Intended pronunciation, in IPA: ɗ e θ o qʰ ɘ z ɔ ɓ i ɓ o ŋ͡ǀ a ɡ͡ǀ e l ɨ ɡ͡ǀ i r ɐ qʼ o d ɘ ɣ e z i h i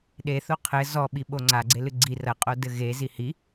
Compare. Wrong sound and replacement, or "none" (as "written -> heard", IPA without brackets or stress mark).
none